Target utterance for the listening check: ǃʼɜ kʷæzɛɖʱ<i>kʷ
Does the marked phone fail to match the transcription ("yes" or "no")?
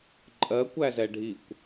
no